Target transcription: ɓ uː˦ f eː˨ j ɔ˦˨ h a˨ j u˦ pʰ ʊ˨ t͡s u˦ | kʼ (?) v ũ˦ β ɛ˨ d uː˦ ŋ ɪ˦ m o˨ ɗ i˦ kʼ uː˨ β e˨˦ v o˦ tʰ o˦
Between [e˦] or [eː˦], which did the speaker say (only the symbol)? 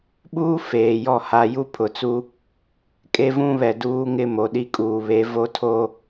e˦